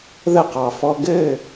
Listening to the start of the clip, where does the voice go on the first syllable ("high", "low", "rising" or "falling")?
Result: falling